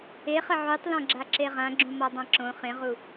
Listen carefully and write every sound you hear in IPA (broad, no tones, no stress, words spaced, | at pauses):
eχə ʕytˤlɔ̃ɡ͡ǁa ǁeʁã ɡ͡ǁũmɔdˤãǁõ χẽʁu